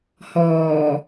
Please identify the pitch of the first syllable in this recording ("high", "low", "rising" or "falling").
low